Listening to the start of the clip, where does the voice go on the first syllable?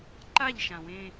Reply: falling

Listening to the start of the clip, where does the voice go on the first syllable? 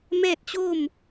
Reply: falling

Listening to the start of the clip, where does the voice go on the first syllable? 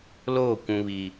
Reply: falling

